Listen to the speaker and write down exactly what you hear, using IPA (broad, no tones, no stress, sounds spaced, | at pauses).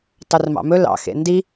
tˤ ɵ r m ɑ̰ m ɵ l ɑ̰ x ḛ n d i